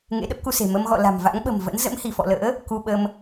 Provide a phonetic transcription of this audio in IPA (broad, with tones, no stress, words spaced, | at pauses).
ŋḛ˧˥ɗə˦˥p̚ku˧se̤˨˩ mə˧m ɣɔ̰˧˨ la̤˨˩mva̰˧˥ŋɓə̤˨˩mvə̰˧˥n zə̰˧˥mhi˧˩fɔ̰˧˨lə̰ː˧˥ | ku˧ɓə˧m